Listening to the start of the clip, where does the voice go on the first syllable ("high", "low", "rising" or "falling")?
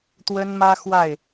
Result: high